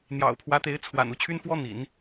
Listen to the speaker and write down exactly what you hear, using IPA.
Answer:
n̪ j ɑ̰˨˩ ʊ̯ pʰ w ä˧˥ t̪ e˧˥ ɪ̯ t͡sʰ w a̰˨˩ n u˥˩ t͡ɕʰ y˥ n f w ɔ˥ n̪ ḭ˨˩˦ n

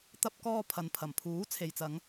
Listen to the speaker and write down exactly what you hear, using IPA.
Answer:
t̪ ɐ˧ p̚ k ɔː˧ pʰ ɐ˨ n pʰ ɐ˨˩ m pʰ uː˨˥ t͡sʰ e˨ j t͡s ɐ˨˧ ŋ

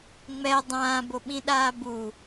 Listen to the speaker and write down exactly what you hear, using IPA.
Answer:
ŋ͡m ɛ dˤ ãː b o ɓ ĩ ɗ aː b u

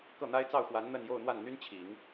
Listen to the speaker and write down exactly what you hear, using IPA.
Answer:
k ɤ˥˩ n̪ a˥ ɪ̯ t͡s ɑ˥˩ ʊ̯ x w a˧˥ n n̪ ə˥˧ n j o˥˧ ʊ̯ n̪ w a˥˩ n n̪ y˥ n t͡ɕʰ i˨˩˦ ŋ

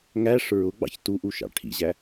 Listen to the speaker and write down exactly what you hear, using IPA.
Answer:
ŋ æ ʂ ɹ ʊ ɡ͡b ɑ̰ ç t u ʔ u ʃ ɑ̰ ʈʰ ḭ ʑ æ

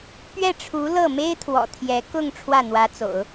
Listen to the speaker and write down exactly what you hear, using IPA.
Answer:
p ɥ ɛ˥˩ ʈ͡ʂʰ u˧˥ l ɤ˥˩ m e˥ ɪ̯ t̪ʰ w ɔ̰˨˩ t̪ʰ j ɛ˧˥ k ʊ˥˧ ŋ ʈ͡ʂʰ w ä˥˩ n̪ w ä˧˥ t͡s o̰˨˩˦ ʊ̯

